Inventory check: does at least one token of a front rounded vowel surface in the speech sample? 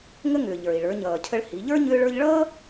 yes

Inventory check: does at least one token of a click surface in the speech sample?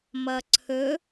yes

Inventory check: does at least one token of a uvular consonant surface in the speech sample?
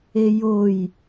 no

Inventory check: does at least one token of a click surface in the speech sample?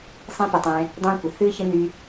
no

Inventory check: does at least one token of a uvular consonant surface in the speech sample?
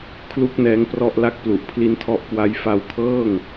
no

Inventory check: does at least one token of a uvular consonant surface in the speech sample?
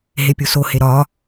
no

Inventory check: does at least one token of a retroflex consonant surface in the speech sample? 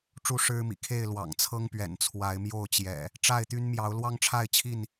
yes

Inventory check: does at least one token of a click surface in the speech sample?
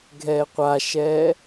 no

